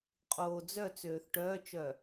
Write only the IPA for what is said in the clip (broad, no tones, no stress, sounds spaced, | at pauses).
qʼ oː d͡z œ t͡s øː θ ʈ œː t͡ʃ œ